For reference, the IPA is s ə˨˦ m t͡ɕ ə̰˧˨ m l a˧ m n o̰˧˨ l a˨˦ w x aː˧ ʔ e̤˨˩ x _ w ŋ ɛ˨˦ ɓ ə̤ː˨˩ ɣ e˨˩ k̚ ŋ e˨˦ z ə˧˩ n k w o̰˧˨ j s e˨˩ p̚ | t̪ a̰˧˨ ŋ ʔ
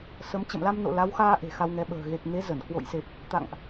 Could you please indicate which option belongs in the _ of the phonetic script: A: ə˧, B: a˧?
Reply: B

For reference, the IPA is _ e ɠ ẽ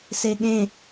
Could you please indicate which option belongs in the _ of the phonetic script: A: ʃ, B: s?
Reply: B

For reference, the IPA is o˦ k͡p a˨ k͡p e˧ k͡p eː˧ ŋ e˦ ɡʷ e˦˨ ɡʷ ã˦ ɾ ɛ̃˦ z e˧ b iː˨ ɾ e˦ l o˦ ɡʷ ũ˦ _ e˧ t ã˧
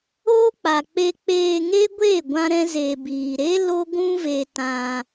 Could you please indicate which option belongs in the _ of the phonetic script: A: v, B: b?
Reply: A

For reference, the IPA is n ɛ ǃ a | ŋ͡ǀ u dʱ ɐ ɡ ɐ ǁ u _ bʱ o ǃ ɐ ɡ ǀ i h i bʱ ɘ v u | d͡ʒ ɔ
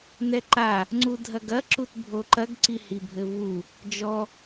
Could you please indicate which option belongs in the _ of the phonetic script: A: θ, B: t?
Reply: B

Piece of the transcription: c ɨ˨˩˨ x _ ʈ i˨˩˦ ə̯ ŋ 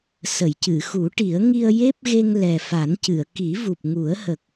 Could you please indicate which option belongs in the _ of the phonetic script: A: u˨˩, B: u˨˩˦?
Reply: B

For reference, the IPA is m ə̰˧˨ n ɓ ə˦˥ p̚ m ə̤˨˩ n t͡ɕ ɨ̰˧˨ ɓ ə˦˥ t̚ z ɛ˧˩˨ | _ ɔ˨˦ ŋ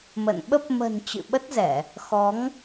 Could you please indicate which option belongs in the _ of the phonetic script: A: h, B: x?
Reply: B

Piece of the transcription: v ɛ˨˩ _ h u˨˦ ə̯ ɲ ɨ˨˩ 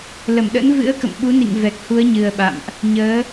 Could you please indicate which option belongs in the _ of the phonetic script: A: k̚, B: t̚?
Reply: A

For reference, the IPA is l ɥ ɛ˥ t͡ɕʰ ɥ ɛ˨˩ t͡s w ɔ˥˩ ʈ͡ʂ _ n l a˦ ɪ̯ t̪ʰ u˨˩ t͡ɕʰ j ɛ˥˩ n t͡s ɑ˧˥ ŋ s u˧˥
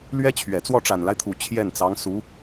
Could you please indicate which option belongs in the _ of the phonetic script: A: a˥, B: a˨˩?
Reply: B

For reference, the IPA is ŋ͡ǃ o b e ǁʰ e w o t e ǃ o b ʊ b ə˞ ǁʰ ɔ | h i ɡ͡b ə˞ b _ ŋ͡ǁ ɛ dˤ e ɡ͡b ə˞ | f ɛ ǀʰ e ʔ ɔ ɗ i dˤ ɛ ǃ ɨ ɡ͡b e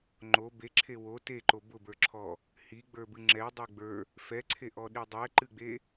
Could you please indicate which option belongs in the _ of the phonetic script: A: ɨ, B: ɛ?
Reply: A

